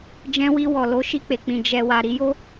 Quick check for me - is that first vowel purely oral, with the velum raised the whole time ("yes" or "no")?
no